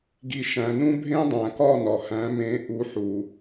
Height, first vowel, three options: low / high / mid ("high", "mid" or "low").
high